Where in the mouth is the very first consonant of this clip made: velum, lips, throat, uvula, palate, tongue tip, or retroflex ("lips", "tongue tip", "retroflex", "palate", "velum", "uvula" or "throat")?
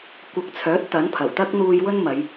velum